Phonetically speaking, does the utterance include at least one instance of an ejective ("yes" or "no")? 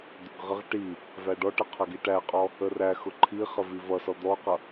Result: yes